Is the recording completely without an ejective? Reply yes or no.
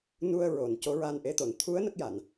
yes